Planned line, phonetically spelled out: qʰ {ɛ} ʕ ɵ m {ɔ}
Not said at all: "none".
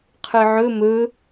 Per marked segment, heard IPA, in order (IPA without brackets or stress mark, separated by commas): ɨ, ɵ